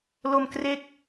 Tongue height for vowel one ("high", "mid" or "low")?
mid